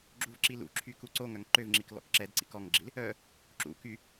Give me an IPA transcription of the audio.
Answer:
ɡ͡ǁ u v ǁ i l ṵ ǁʰ y k u ǀ o ŋ œ ŋ ǃ ø v ŋ͡ǁ i k l ɔ̰ k ǁ ɛ d ǀ ḭ k ɔ ŋ ɡ͡ǁ i l | œ | ǁ ṵ k y

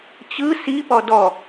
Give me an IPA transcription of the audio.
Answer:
t͡ɕ ɯ s i p ɔ d ɔ

